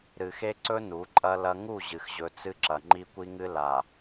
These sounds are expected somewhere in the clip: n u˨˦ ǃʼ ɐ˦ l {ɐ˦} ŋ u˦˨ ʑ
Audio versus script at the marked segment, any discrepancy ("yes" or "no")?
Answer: no